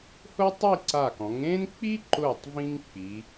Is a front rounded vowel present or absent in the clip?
absent